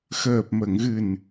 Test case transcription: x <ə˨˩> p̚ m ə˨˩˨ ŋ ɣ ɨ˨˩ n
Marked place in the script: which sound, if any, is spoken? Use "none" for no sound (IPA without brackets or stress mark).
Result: əː˨˩